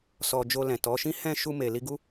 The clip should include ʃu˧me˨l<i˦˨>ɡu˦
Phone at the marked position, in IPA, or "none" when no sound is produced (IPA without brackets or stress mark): i˧